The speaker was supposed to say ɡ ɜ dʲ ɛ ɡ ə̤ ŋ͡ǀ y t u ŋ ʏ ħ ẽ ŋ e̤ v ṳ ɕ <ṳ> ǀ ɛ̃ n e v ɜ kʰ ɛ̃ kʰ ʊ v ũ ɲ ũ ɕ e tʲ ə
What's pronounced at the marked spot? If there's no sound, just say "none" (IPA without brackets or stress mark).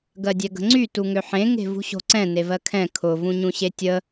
o̤